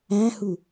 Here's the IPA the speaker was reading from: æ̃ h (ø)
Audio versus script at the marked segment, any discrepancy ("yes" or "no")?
yes